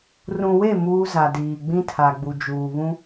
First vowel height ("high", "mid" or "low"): high